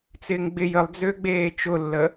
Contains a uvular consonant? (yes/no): no